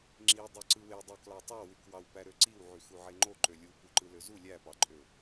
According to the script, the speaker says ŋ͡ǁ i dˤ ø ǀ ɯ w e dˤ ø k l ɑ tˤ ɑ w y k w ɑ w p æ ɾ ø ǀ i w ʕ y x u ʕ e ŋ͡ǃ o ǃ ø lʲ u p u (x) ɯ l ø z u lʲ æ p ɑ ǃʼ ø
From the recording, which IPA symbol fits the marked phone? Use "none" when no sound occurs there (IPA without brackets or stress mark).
ǃ